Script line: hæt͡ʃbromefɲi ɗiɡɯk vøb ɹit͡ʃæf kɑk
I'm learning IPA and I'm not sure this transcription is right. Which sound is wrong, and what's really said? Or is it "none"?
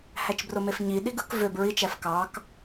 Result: none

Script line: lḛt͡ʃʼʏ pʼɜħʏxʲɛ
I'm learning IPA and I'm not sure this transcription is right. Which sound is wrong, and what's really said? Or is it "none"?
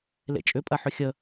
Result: ɛ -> ə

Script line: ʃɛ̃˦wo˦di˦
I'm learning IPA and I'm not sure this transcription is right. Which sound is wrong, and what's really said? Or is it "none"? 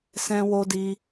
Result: ʃ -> s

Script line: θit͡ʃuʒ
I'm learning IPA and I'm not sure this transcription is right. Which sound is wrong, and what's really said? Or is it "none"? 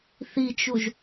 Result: none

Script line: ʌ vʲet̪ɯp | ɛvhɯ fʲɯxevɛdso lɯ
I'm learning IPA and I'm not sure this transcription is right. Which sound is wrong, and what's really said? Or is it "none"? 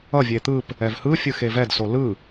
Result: none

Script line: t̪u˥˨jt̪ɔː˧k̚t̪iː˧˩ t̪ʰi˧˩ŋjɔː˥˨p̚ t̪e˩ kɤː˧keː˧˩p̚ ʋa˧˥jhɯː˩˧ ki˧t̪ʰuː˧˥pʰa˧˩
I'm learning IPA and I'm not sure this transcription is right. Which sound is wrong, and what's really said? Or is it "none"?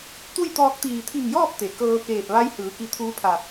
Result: none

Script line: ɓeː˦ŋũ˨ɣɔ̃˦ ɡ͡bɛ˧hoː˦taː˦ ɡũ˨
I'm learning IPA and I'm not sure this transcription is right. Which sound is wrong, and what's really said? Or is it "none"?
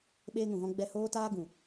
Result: none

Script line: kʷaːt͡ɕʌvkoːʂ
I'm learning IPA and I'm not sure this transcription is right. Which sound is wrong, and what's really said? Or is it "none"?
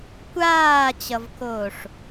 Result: none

